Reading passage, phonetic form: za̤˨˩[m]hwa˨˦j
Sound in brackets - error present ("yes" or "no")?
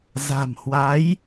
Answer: no